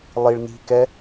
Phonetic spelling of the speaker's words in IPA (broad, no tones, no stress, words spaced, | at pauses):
lˠiɭni̤kɛ